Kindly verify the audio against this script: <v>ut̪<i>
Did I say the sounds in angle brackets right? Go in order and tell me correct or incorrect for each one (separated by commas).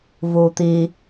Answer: correct, correct